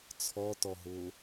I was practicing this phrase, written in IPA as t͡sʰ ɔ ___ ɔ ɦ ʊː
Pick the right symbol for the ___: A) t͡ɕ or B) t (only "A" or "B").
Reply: B